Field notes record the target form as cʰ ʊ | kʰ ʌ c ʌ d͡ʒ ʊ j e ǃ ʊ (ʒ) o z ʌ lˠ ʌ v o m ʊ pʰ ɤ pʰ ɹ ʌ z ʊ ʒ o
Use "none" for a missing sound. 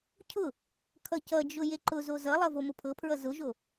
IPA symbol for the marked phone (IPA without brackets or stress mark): z